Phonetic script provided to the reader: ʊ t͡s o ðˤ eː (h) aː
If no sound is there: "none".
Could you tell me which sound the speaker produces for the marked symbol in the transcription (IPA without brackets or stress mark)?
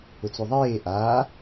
ʔ